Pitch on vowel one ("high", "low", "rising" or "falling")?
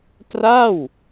falling